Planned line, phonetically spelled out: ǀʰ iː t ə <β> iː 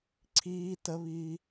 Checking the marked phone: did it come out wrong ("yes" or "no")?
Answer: no